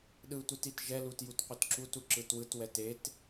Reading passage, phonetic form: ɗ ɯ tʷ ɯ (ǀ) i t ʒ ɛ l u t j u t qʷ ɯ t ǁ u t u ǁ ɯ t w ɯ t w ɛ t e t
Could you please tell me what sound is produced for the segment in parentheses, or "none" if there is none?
t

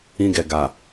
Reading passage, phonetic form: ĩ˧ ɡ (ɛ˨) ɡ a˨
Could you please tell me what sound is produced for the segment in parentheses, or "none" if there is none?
ɛ˨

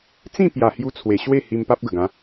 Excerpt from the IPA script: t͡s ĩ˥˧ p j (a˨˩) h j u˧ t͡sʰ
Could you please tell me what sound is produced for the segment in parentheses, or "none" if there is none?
a˨˩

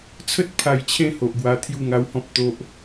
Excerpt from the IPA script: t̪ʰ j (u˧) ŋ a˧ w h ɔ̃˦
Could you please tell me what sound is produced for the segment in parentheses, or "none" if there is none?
u˥˧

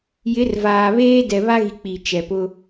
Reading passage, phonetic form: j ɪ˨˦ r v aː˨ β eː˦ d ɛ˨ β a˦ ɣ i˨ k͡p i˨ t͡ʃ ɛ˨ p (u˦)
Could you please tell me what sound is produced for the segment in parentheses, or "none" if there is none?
ʊ˦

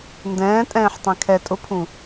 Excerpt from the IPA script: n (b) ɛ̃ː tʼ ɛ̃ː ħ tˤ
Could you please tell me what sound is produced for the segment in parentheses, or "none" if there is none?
d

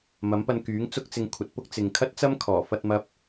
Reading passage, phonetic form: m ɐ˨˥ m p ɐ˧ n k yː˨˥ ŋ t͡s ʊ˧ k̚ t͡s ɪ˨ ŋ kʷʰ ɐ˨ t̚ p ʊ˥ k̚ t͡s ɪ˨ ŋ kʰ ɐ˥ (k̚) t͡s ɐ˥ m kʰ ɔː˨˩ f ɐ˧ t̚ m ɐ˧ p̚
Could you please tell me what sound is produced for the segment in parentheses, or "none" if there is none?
t̚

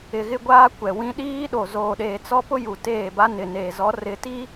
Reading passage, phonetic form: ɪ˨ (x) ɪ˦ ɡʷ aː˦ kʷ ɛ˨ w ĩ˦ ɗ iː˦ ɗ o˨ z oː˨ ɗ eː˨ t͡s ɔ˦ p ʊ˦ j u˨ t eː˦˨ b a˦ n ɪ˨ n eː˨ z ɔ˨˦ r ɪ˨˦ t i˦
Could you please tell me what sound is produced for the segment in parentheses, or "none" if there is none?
ɣ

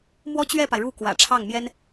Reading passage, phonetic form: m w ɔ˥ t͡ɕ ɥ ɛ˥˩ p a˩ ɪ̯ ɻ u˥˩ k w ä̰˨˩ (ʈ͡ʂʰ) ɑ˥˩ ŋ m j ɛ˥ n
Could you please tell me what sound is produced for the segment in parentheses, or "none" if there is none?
ʈ͡ʂʰ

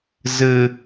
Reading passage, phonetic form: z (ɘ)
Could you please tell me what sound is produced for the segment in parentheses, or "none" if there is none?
ɘ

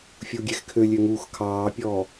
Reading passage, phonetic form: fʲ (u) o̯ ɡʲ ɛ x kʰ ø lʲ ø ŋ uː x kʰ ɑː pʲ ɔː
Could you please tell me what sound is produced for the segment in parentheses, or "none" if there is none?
u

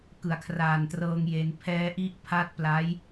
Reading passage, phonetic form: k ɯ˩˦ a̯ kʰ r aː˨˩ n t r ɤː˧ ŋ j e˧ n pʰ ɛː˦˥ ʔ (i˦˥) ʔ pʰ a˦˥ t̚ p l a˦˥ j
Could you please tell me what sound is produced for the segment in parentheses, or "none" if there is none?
i˦˥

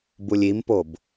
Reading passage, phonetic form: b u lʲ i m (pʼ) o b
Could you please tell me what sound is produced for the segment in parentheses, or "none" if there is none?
p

